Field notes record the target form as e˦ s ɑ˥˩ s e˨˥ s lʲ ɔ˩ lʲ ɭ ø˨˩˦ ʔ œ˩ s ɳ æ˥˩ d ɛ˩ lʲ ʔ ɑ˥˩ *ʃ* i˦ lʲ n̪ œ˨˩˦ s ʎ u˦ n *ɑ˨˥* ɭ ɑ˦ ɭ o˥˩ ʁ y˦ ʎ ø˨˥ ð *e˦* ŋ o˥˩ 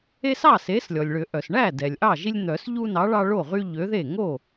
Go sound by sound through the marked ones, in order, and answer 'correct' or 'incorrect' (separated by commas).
incorrect, correct, incorrect